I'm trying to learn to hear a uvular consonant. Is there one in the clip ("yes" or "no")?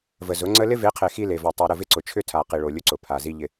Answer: yes